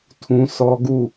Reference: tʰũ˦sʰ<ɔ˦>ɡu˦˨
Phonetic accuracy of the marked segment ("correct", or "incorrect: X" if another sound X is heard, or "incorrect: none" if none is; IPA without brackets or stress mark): correct